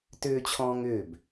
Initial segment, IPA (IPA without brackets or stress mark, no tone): t